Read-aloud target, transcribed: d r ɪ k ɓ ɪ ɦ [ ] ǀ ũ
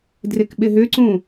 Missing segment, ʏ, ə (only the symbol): ʏ